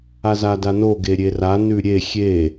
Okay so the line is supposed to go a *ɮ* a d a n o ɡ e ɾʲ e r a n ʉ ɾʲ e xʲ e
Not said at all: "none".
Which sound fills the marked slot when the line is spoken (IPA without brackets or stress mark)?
z